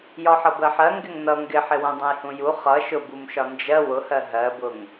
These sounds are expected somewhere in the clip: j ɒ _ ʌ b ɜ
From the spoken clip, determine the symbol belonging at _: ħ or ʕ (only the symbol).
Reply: ħ